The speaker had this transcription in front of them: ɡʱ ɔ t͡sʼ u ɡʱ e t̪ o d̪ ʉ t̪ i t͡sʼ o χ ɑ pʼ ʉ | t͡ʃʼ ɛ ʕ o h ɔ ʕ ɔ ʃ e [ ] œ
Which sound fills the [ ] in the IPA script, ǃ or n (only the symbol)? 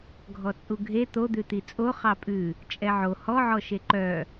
ǃ